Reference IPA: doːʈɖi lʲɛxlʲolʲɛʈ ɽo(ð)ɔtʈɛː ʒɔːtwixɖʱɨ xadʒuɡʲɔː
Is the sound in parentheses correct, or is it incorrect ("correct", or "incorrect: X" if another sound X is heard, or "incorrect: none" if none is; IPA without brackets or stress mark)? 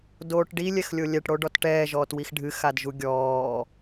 incorrect: ɖ